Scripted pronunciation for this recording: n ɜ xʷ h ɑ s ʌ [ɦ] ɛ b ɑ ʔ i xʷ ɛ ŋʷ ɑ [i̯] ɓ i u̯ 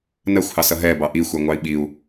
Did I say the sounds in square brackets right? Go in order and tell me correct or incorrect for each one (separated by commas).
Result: correct, correct